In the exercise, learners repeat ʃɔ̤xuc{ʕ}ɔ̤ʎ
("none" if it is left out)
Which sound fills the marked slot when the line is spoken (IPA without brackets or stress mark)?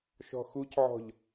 ʕ